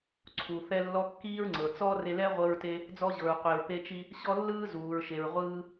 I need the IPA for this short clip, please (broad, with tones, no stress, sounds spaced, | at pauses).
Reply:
ǀʰ u˩ θ ɛ˧ lː ɔ˧ kː iː˥ ɹ ŋ͡ǀ ɤ˩ t͡s ɔ˥ r e˧ l ɛ˥ ʁʷ ɤ˧ ɹ t e˧ | d͡z ɔ˧ ʑ ɤ˩ ɹ qʷ e˩ ɹ p e˧ t͡ʃ i˧ | ɕ ɔ˥ lː ɯː˥ z uː˩ ɹ ʃ e˩ ɹ ʁʷ ɯː˧